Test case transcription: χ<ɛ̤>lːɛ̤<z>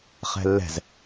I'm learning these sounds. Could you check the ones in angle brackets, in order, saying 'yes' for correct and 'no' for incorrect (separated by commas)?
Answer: yes, yes